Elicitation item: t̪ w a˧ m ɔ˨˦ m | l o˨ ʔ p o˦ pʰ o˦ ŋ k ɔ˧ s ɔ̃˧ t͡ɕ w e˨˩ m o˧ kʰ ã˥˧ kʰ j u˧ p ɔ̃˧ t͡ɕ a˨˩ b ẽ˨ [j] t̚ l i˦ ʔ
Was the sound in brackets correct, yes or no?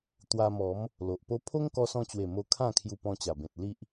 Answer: no